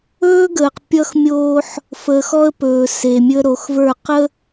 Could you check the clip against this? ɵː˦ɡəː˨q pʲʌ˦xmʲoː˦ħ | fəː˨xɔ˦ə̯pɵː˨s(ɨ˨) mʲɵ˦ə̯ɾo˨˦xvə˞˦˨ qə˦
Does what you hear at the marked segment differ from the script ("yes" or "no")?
yes